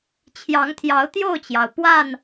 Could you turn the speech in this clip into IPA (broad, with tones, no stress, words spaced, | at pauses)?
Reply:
t͡ɕʰjɑ˨˦ŋt̪ʰjɑ˨˦ʊ̯ t̪jo˥˨ʊ̯t͡ɕjɑ˩ʊ̯pwa˥˨n